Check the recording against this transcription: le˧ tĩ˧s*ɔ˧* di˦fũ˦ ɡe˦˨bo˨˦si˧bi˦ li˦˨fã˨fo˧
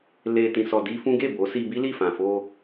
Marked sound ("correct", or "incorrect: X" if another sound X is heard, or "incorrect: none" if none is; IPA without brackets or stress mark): correct